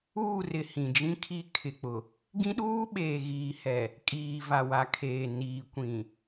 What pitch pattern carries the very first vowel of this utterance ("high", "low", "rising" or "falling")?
falling